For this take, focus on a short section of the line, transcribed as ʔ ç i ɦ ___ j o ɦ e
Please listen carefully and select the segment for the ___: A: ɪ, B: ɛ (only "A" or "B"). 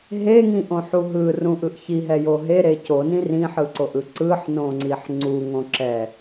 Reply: B